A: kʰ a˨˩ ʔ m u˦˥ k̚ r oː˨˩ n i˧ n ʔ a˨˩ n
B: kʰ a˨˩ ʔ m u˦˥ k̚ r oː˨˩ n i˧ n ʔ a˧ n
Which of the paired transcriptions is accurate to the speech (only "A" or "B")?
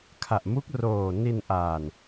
A